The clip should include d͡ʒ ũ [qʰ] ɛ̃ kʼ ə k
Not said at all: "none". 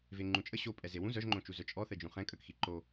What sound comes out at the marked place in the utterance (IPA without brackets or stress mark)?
χ